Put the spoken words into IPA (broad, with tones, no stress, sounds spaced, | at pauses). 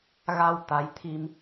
ɣ a˧ w t̪ a˨˦ j t̪ʰ i˧ m